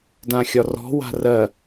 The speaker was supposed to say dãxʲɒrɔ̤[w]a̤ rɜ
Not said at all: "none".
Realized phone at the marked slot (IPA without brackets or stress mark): w